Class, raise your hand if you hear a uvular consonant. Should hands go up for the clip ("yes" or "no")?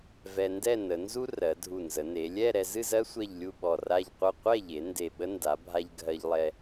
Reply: yes